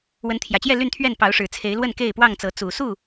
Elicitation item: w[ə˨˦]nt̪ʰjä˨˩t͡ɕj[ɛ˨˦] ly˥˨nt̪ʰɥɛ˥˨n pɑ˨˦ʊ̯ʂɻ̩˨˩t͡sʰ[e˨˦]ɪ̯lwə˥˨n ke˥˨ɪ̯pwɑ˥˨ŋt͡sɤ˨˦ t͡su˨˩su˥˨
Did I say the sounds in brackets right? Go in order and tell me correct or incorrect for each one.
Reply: correct, incorrect, correct

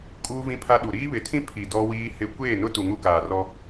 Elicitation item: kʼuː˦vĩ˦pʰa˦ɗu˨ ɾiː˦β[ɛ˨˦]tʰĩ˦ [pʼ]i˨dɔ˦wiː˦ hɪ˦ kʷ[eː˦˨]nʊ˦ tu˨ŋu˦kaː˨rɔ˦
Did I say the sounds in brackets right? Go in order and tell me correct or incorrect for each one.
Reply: incorrect, incorrect, correct

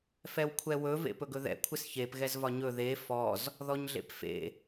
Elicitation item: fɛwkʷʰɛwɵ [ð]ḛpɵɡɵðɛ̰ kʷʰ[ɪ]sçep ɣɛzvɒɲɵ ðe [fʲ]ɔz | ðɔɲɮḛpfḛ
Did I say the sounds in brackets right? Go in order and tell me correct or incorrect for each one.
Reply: incorrect, correct, incorrect

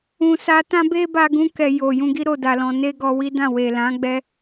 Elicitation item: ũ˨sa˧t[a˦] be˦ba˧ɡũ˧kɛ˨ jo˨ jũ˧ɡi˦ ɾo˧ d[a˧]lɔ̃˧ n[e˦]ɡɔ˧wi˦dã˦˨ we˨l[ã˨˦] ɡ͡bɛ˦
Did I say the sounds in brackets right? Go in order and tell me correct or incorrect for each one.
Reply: incorrect, correct, correct, correct

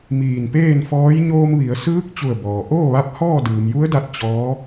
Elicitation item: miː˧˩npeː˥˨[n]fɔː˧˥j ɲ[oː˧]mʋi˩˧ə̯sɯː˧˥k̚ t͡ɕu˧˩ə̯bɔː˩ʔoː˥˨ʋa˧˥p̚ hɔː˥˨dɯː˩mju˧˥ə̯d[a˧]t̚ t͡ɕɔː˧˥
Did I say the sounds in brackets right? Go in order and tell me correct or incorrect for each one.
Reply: correct, correct, correct

